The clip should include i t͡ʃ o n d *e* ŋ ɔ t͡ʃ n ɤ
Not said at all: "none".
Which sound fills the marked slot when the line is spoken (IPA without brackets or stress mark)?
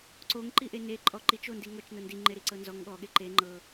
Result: i